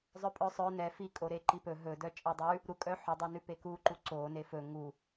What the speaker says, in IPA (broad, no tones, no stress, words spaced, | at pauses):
zˤœpʼœsˤœ nɛ fikʼoɾe ǃipɵ ɦɵ dœt͡ʃʼedˤʉ | ɾukʼœ ħɵdˤonʉ pekuǃu ǀo nefɵ ŋu